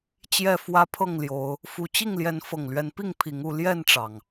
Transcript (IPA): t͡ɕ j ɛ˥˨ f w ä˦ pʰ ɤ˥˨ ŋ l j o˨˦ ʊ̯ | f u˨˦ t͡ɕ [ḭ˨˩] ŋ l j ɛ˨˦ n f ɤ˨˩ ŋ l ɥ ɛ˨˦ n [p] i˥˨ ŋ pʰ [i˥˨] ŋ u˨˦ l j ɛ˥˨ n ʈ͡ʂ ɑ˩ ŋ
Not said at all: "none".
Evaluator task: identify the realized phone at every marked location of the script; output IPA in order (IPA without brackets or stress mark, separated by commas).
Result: i˥˨, p, i˨˦